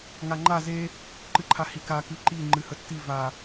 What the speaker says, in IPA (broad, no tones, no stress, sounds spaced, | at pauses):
ŋ a ŋ͡ǃ a z e | ǃ ɨ ǃʰ a h i k a k ɨ ǃ i ŋ͡ǃ ɨ h ə tː i v a